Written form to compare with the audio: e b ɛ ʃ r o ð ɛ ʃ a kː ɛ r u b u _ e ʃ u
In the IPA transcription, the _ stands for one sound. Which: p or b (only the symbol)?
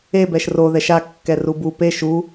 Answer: p